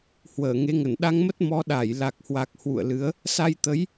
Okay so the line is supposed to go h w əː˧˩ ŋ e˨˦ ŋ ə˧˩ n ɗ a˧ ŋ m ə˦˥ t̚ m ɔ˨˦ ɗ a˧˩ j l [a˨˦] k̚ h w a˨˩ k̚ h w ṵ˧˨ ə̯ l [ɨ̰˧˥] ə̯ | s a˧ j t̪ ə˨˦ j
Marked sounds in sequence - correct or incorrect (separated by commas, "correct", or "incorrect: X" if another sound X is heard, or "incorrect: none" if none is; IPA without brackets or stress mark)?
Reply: incorrect: a˨˩, incorrect: ɨ˨˦